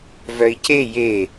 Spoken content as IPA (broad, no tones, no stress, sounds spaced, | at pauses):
v œ i̯ c e j e